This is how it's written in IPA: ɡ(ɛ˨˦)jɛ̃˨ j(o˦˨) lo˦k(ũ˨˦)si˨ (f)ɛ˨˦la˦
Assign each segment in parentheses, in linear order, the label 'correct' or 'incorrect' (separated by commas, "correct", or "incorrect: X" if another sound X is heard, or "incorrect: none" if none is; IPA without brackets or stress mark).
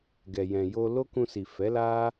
incorrect: ɛ˨, incorrect: o˧, incorrect: ũ˧, correct